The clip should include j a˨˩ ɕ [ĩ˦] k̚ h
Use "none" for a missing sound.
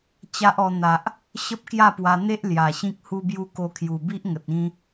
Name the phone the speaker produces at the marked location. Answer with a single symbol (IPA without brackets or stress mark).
ĩ˦